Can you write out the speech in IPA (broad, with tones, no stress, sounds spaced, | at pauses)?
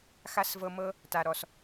x a˦ s v ɤ˧ m ɤ˦ | t a˨ ɾ ɔ˨ s